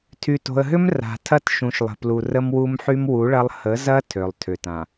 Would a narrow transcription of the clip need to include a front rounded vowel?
yes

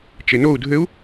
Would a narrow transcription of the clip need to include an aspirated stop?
no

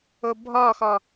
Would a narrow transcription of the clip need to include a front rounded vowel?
no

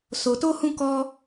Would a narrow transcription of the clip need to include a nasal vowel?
yes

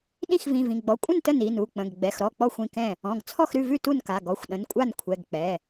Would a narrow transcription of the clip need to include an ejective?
yes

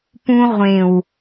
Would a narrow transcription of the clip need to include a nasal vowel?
yes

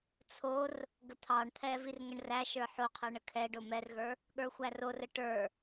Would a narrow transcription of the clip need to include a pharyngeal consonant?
yes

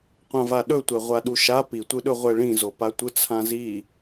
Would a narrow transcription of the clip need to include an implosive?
yes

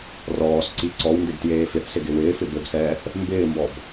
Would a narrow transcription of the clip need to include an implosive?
no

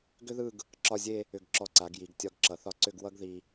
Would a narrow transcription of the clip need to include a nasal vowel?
no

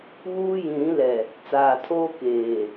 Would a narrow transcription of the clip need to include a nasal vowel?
yes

